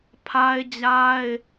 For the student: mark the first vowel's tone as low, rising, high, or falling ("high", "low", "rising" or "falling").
high